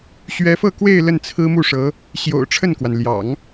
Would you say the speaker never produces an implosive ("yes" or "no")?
yes